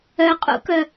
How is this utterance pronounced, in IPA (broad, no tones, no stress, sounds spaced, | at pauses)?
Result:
œ qʼ ṵ k œ